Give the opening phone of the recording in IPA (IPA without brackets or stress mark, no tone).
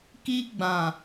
k